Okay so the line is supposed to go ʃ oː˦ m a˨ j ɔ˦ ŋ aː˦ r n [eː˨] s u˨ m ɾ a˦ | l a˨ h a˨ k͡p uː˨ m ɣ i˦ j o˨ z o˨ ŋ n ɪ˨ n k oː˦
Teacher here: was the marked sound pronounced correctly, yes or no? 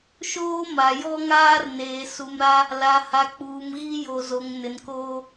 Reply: yes